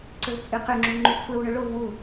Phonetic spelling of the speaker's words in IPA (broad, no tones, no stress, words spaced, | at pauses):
ǀɵvt͡sʼyqyŋ͡ǁu ŋ͡ǃuɡsʷɛwɳɵ ɭov wu